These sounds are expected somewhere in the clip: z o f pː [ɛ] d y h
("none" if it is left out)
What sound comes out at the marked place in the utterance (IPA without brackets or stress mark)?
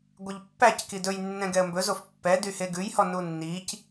ɛ